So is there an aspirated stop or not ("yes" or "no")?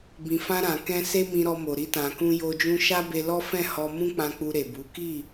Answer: no